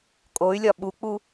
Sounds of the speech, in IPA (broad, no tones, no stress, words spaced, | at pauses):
kʼoy̯lʲɒ ɓuk͡pu